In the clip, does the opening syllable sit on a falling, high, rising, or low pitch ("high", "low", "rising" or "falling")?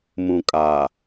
low